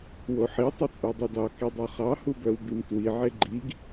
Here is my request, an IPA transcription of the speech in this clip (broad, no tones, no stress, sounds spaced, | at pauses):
w o ħ i tˤ œ t͡sʼ u dˤ i d ɑ k i dˤ o χ ɑ h u b œ w b i m t w i ʕ e ɡ͡ǃ i ɡ